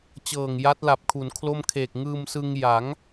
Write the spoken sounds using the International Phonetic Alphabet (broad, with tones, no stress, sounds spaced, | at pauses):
t͡ɕ ɤː˨˩ ŋ j a˦˥ t̚ l a˨˩ p̚ kʰ u˩˦ n kʰ l o˥˩ m kʰ eː˨˩ k̚ ŋ ɯː˧ m s ɯ˧ ŋ j a˩˦ ŋ